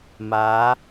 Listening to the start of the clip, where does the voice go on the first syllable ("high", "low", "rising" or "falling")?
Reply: rising